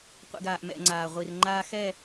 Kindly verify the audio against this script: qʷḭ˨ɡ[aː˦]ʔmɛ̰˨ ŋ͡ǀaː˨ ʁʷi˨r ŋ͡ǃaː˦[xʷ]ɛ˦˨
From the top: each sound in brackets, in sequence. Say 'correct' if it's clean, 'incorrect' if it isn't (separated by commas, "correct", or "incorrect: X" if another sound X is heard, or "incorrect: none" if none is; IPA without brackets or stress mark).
incorrect: aː˨, incorrect: x